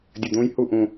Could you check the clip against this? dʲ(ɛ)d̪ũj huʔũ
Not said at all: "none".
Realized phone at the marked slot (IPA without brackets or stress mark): ɘ